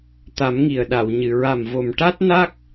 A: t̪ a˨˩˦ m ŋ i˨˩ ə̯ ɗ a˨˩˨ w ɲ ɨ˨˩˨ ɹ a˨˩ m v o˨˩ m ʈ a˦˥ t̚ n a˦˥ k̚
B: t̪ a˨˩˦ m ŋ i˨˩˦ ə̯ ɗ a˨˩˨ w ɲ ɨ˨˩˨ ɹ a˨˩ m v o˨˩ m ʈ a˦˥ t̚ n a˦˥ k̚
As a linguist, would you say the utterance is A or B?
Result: A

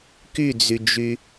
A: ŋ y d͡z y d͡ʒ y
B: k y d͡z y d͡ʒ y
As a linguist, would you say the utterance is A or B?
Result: B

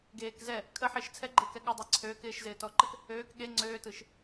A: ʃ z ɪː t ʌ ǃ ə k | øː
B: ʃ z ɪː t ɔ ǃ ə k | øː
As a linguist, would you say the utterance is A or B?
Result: B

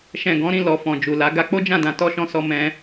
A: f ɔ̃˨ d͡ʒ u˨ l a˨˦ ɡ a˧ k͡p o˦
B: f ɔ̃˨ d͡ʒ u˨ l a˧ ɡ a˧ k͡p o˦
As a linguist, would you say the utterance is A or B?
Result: A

